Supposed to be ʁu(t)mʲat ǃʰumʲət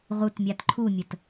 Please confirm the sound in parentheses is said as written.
yes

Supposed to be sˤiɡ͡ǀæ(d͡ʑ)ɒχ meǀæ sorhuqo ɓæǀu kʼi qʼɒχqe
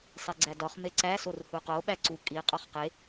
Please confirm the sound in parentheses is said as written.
no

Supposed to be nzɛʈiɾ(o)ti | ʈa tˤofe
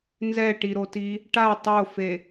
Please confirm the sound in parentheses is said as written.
yes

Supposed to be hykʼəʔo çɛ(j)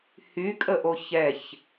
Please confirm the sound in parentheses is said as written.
no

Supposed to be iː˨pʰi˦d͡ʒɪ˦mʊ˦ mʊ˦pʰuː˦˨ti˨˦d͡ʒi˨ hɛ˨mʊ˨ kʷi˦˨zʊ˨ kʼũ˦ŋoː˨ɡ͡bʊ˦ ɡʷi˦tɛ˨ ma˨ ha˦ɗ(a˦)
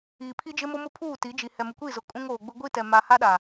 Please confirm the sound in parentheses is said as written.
no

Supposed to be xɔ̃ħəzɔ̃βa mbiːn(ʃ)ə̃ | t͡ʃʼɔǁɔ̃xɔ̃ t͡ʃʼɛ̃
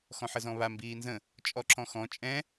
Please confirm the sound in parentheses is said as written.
no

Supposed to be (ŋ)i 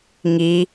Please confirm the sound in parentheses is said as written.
yes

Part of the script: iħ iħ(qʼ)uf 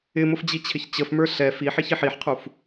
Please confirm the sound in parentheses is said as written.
no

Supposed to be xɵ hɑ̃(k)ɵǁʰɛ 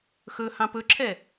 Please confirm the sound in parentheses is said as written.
no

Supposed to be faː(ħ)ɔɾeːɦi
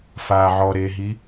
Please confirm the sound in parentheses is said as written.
no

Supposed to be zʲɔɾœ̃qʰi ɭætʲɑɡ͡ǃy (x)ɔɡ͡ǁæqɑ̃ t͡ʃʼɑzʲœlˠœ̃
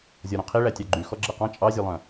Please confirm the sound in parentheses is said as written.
yes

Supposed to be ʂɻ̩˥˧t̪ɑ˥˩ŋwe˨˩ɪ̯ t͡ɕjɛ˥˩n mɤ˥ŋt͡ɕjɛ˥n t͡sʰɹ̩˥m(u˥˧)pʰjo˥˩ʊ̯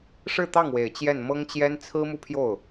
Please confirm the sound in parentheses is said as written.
yes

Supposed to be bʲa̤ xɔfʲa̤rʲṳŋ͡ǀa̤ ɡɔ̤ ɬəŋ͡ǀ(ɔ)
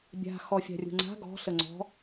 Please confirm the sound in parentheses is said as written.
no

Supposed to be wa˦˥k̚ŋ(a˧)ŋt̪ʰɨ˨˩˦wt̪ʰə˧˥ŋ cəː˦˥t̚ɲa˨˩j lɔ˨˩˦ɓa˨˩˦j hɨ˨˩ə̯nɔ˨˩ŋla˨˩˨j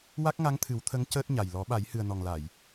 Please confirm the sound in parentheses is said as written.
no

